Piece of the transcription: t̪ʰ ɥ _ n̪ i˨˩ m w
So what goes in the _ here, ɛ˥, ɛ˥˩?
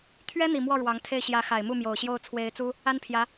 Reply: ɛ˥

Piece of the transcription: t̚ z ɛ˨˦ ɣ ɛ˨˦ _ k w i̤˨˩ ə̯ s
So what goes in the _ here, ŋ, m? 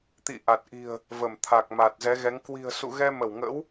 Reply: ŋ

